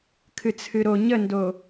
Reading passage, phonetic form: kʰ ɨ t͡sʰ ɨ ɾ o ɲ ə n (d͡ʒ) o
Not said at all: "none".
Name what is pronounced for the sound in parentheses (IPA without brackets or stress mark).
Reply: d